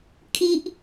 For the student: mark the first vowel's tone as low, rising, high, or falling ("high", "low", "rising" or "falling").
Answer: high